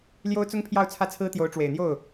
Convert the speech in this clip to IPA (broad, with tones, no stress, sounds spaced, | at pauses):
l j o˥ ʊ̯ t͡s ʊ˥ ŋ pʰ j ɑ˥˧ ʊ̯ t͡sʰ ä˥˩ t͡sʰ ɹ̩˥ t̪ j o˧˥ ʊ̯ ʈ͡ʂ w e˨˩ ɪ̯ n̪ j o˥˩ ʊ̯